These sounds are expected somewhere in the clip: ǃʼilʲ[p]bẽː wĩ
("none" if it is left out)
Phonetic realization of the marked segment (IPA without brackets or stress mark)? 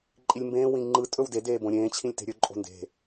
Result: m